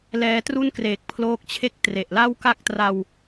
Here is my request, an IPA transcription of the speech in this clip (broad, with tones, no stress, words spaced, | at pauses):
lɛː˧tru˥˩n kreː˨˩k̚pʰloː˦˥k̚t͡ɕʰe˥˩k̚ tre˨˩ʔ la˥˩wka˥˩k̚tra˧w